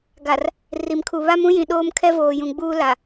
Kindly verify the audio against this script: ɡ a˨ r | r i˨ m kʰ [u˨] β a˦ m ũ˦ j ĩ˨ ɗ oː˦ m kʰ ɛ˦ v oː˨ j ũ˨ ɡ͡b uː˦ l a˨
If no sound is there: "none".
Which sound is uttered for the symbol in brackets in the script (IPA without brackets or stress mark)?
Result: u˨